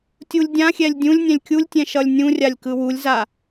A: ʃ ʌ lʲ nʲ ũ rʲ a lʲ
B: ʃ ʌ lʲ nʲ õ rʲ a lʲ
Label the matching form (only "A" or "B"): A